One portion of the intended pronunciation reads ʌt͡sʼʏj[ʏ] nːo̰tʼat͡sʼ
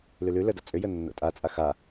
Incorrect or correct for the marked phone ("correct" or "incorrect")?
incorrect